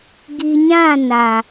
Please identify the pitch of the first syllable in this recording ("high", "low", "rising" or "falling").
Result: low